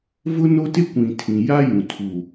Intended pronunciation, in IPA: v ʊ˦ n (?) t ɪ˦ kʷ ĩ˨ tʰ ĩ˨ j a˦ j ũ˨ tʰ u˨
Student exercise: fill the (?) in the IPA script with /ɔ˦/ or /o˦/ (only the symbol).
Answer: o˦